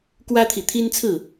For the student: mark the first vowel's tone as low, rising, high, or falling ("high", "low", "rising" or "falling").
high